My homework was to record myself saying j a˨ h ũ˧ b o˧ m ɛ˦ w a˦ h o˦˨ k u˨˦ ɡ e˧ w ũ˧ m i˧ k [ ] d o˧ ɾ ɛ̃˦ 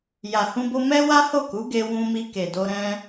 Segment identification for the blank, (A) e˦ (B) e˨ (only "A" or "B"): B